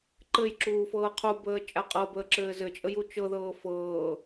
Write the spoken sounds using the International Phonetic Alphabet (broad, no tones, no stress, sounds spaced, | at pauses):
ǃ ɘ j ǁ uː f ɤː qʰ u b əː t͡ʃʼ a qʼ ɤ b əː ǁ ɘː z ɘ t͡ʃʼ ə j u t͡ʃ ɤ ð ɤː f ɤː